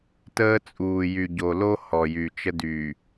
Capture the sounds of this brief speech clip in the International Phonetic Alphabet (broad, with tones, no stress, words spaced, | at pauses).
təː˦t͡sʼuː˨jy˨ ɟo˨lo˦ hɔ˨ jy˨t͡ʃə˦dy˨